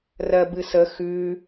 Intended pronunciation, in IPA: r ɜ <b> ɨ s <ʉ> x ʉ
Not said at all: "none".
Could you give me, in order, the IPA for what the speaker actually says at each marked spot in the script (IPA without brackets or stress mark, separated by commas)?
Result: b, ə